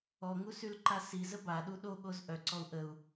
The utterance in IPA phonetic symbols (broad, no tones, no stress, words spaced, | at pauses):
ɔŋusylǃa sizə baɗu ɗoɠoz ʔœǀɔu̯ ʔəu̯